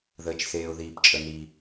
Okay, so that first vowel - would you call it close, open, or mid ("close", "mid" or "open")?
mid